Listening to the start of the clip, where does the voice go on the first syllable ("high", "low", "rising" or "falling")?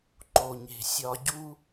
low